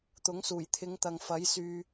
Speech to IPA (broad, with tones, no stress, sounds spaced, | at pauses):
t̪ ʊ˨˥ ŋ s uː˨˩ j t̪ʰ ɪ˨˧ ŋ t̪ ɐ˨ ŋ f ɐ˨˥ j s yː˨